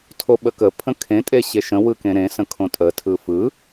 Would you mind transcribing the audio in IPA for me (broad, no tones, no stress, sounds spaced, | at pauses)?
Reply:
tʰ o ɓ ə k ə pʰ ə̃ kʰ ẽ tʼ e ɕ e ʃ ə̃ w ɯ k ẽ ɾ ẽ s ə̃ kʰ õ tʼ ə tʰ ɯ f ɯ